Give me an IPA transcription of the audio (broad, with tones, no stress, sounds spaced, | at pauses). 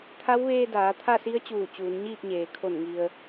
t̪ʰ a˧˥ w ʋ eː˧ d aː˩˧ t̪ʰ a˥˨ s i˧˥ ə̯ t͡ɕ uː˧˩ t͡ɕ uː˩˧ n ɲ iː˥˨ p̚ ɲ eː˩ kʰ o˧˩ n ŋ i˩ ə̯